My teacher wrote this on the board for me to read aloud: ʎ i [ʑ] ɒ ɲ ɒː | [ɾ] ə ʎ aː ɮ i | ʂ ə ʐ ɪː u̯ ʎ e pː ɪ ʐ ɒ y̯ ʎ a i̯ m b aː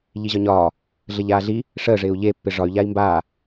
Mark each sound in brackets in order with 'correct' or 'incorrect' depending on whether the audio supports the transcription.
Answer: correct, incorrect: ɮ

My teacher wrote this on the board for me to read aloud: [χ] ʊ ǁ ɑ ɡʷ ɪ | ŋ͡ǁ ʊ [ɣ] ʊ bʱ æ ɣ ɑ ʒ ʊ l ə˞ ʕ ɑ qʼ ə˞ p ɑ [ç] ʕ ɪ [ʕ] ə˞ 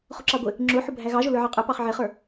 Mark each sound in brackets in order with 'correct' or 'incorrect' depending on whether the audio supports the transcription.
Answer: correct, incorrect: ħ, incorrect: χ, incorrect: χ

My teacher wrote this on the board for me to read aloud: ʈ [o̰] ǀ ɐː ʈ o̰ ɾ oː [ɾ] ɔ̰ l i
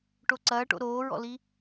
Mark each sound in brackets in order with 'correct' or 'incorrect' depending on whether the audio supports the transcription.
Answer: incorrect: o, incorrect: ɹ

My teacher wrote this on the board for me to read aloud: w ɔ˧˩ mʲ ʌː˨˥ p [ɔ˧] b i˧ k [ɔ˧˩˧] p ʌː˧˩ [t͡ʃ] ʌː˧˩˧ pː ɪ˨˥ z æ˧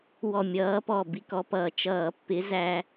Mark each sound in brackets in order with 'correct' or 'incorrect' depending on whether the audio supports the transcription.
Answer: incorrect: ɔ˧˩, incorrect: ɔ˧, correct

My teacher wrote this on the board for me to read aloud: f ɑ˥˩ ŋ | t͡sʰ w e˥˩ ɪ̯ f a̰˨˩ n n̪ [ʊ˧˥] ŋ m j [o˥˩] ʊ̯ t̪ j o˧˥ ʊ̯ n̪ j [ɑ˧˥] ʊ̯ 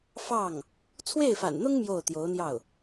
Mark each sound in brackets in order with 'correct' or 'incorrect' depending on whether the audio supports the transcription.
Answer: incorrect: ʊ˥, correct, incorrect: ɑ˥˩

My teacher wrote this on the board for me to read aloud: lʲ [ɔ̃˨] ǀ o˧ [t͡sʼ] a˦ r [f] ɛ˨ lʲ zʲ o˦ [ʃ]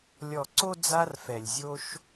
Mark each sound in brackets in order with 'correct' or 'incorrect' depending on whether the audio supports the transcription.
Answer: incorrect: ɔ˨, incorrect: d͡z, correct, correct

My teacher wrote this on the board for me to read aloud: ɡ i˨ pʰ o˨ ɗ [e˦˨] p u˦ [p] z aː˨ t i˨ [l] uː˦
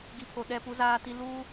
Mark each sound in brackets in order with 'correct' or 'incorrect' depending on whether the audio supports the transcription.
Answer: incorrect: ɛ˦˨, incorrect: none, correct

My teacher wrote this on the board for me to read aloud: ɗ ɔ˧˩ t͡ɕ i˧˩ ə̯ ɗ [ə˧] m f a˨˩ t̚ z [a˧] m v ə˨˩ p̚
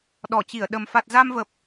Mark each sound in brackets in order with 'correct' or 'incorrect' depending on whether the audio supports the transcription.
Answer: incorrect: ə˨˩, correct

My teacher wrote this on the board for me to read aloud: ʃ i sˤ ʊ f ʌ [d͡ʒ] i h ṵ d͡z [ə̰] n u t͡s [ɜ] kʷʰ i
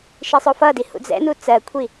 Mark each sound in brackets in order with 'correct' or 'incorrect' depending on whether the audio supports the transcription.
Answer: incorrect: d, incorrect: ɛ̰, correct

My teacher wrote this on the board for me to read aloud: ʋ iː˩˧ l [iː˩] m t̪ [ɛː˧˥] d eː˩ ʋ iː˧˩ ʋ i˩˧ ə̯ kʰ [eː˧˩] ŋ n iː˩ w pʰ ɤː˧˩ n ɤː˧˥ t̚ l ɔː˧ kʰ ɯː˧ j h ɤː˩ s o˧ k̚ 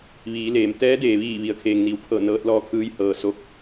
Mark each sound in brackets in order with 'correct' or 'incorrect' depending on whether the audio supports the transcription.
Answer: incorrect: eː˩, correct, incorrect: eː˩

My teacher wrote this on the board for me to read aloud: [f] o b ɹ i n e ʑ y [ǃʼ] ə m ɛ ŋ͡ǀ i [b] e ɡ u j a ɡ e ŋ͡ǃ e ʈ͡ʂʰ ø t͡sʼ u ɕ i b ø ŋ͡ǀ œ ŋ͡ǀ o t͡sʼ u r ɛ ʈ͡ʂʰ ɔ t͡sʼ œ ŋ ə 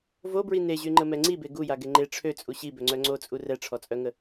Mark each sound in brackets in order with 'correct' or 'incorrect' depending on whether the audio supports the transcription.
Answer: incorrect: v, incorrect: ŋ͡ǃ, correct

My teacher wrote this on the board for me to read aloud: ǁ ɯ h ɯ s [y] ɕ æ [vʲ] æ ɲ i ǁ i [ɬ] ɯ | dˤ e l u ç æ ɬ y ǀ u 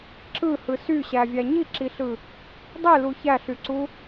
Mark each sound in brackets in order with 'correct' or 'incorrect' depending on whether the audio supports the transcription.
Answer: correct, correct, correct

